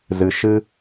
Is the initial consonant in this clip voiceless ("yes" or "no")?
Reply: no